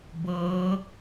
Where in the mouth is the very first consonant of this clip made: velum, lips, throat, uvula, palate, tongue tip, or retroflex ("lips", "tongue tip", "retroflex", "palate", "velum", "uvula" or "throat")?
lips